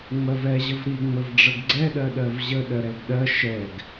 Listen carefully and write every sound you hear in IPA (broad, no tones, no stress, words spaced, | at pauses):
ŋ͡mɜvɛ ʑəvɾi ŋ͡məvɖ͡ʐəɡɡ͡ǀɛ ɗɜɗɜvʑə ɗɜɾɛɡɗɜ ʃɛɡ